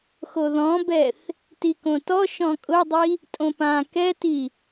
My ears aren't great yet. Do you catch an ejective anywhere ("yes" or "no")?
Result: yes